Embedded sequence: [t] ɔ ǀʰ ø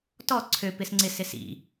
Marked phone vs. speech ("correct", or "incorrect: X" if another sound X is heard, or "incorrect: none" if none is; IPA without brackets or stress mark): correct